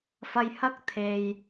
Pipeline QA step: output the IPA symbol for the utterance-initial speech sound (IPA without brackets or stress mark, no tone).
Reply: f